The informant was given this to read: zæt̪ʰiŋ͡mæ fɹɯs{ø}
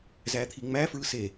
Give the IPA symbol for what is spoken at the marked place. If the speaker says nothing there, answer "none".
e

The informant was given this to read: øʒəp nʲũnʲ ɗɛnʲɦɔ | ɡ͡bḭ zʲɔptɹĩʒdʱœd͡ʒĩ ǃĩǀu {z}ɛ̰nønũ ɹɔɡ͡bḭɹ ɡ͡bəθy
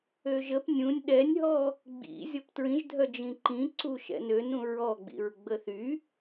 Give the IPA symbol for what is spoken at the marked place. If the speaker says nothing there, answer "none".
ʃ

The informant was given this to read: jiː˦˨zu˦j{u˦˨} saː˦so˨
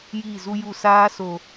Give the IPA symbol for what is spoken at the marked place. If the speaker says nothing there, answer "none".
u˦˨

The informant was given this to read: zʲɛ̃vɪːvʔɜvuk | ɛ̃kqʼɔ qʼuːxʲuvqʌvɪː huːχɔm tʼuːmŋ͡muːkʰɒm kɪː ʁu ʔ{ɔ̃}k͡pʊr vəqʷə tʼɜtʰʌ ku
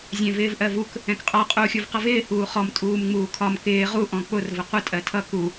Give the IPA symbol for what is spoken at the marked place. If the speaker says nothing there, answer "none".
ɔ̃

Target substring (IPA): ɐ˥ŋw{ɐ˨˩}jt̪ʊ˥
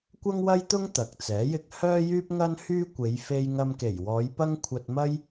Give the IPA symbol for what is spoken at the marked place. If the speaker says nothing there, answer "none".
ɐ˥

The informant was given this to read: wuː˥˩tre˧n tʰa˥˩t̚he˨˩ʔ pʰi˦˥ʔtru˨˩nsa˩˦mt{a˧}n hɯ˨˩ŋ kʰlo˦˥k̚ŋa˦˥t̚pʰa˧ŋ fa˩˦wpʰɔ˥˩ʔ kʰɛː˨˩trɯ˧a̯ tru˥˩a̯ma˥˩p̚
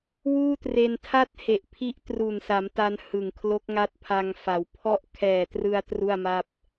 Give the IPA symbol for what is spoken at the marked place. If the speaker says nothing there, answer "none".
a˧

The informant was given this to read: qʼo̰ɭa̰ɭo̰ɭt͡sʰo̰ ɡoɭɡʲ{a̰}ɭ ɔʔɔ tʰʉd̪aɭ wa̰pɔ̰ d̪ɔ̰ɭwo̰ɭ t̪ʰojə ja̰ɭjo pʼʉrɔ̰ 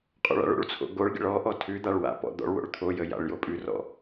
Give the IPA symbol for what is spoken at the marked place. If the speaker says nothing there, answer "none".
ə̰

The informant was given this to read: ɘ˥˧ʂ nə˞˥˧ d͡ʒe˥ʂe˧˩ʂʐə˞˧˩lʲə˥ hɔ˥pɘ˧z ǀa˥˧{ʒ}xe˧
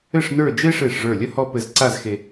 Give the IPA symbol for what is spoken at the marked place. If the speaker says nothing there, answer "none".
z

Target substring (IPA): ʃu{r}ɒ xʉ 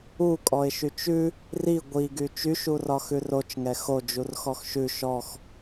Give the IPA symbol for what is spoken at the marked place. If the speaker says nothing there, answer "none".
r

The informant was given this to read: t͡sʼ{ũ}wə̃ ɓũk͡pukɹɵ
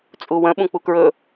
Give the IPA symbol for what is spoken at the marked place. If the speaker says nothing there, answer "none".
u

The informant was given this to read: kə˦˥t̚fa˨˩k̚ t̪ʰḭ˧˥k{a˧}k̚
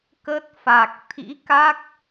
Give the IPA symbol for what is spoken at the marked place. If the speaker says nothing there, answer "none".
a˦˥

